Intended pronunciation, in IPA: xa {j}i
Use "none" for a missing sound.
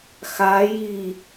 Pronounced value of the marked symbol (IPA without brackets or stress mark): j